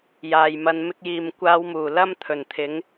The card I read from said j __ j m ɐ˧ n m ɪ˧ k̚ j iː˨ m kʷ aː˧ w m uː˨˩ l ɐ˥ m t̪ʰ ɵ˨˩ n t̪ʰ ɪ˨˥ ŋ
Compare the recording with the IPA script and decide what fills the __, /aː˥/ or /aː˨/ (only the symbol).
aː˨